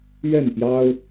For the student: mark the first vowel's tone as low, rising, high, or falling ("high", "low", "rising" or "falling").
falling